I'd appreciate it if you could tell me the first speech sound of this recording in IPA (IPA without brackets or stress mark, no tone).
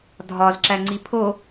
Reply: dʱ